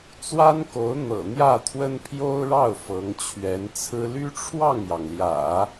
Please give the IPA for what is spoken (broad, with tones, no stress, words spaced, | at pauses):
t͡swa˥nko˧˥ʊ̯ n̪ɤ̰˨˩n̪jä˥˩t̪ʰwə˥n pʰjo˥ʊ̯ɻɑ˥˩ʊ̯ fɤ˧˥ŋ t͡ɕʰɥɛ˧˥nt͡sʰɹ̩˥ ly˥ʈ͡ʂʰwɑ˥˩ŋjɑ˩ŋljä̰˨˩˦